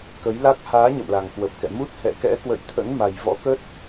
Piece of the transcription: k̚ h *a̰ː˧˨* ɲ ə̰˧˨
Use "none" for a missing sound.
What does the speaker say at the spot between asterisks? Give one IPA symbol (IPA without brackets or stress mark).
aː˨˦